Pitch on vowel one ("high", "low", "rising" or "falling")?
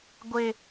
low